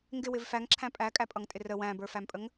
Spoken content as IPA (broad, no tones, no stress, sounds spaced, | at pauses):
ŋ ɡ ɪ w ɪ v f æ ŋ ǁʰ æ̃ pʼ æ kʼ æ pʼ ʌ ŋ tʼ ɪ r ə w æ̃ b ə˞ f æ m pʼ ə ŋ